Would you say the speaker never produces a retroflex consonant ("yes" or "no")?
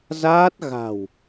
yes